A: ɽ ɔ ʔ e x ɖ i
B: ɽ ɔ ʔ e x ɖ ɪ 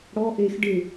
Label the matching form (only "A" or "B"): B